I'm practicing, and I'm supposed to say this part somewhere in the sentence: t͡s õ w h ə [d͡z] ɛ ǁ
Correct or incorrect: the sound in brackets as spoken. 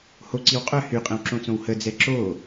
correct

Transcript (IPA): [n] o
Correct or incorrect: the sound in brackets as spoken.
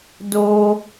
incorrect: d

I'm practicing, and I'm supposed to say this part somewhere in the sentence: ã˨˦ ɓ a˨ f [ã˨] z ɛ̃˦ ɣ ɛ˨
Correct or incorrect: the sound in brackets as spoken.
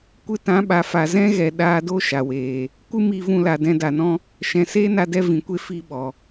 incorrect: a˨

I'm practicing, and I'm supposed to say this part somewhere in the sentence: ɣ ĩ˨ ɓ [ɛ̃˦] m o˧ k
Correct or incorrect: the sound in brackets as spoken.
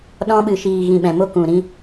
incorrect: ɛ̃˨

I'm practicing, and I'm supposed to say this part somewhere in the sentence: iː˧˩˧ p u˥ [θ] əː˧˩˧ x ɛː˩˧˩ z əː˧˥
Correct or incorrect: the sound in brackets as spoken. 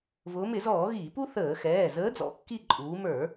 correct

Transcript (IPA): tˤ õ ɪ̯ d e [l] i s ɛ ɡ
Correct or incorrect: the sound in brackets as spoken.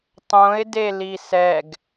correct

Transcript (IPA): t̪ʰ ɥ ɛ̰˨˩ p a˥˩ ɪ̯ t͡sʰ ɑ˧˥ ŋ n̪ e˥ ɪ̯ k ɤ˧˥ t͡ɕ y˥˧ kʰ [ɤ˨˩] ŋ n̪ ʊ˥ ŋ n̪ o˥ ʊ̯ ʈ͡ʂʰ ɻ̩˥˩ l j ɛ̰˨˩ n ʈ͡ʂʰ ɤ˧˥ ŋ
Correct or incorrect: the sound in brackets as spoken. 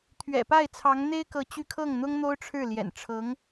incorrect: ɤ˥˩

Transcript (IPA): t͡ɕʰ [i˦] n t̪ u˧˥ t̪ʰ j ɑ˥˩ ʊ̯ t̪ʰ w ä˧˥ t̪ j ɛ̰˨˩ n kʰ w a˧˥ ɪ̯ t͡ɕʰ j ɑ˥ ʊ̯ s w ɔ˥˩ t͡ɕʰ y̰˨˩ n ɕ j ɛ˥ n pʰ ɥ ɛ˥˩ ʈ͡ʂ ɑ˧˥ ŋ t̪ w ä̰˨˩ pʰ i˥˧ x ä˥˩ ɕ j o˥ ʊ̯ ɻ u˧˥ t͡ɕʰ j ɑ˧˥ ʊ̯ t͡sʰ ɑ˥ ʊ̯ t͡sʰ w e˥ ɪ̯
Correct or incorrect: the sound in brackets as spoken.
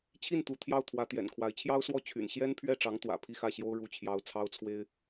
incorrect: i˥˩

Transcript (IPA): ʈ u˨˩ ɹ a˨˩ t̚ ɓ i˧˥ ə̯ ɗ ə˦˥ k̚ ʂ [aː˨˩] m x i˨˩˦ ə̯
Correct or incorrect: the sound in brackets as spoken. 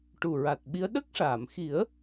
incorrect: aː˨˩˨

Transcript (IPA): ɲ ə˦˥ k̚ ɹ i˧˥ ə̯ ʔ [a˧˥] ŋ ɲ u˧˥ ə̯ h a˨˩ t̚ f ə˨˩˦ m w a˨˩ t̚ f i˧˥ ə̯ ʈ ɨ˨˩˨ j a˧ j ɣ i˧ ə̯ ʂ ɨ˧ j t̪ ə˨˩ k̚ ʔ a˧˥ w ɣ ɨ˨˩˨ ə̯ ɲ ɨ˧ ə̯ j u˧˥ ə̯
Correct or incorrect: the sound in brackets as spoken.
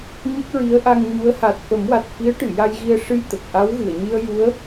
incorrect: a˧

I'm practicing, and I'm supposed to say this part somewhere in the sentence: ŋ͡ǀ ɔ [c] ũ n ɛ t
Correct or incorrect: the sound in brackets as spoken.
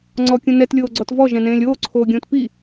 incorrect: kʲ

